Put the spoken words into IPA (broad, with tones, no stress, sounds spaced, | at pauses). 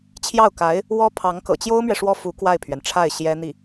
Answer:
t͡ɕʰ j ɑ˥˩ ʊ̯ k a˧˥ ɪ̯ | w ɔ˥ pʰ ɑ˧˥ ŋ k ɤ̰˨˩ t͡ɕ j o˥ ʊ̯ m ɥ ɛ˨ ʂ w ɔ˥˩ f u˧˥ k w a˥˩ ɪ̯ pʰ ɥ ɛ˩ n ʈ͡ʂʰ a˥˩ ɪ̯ ɕ j ɛ˥ n̪ i˥˩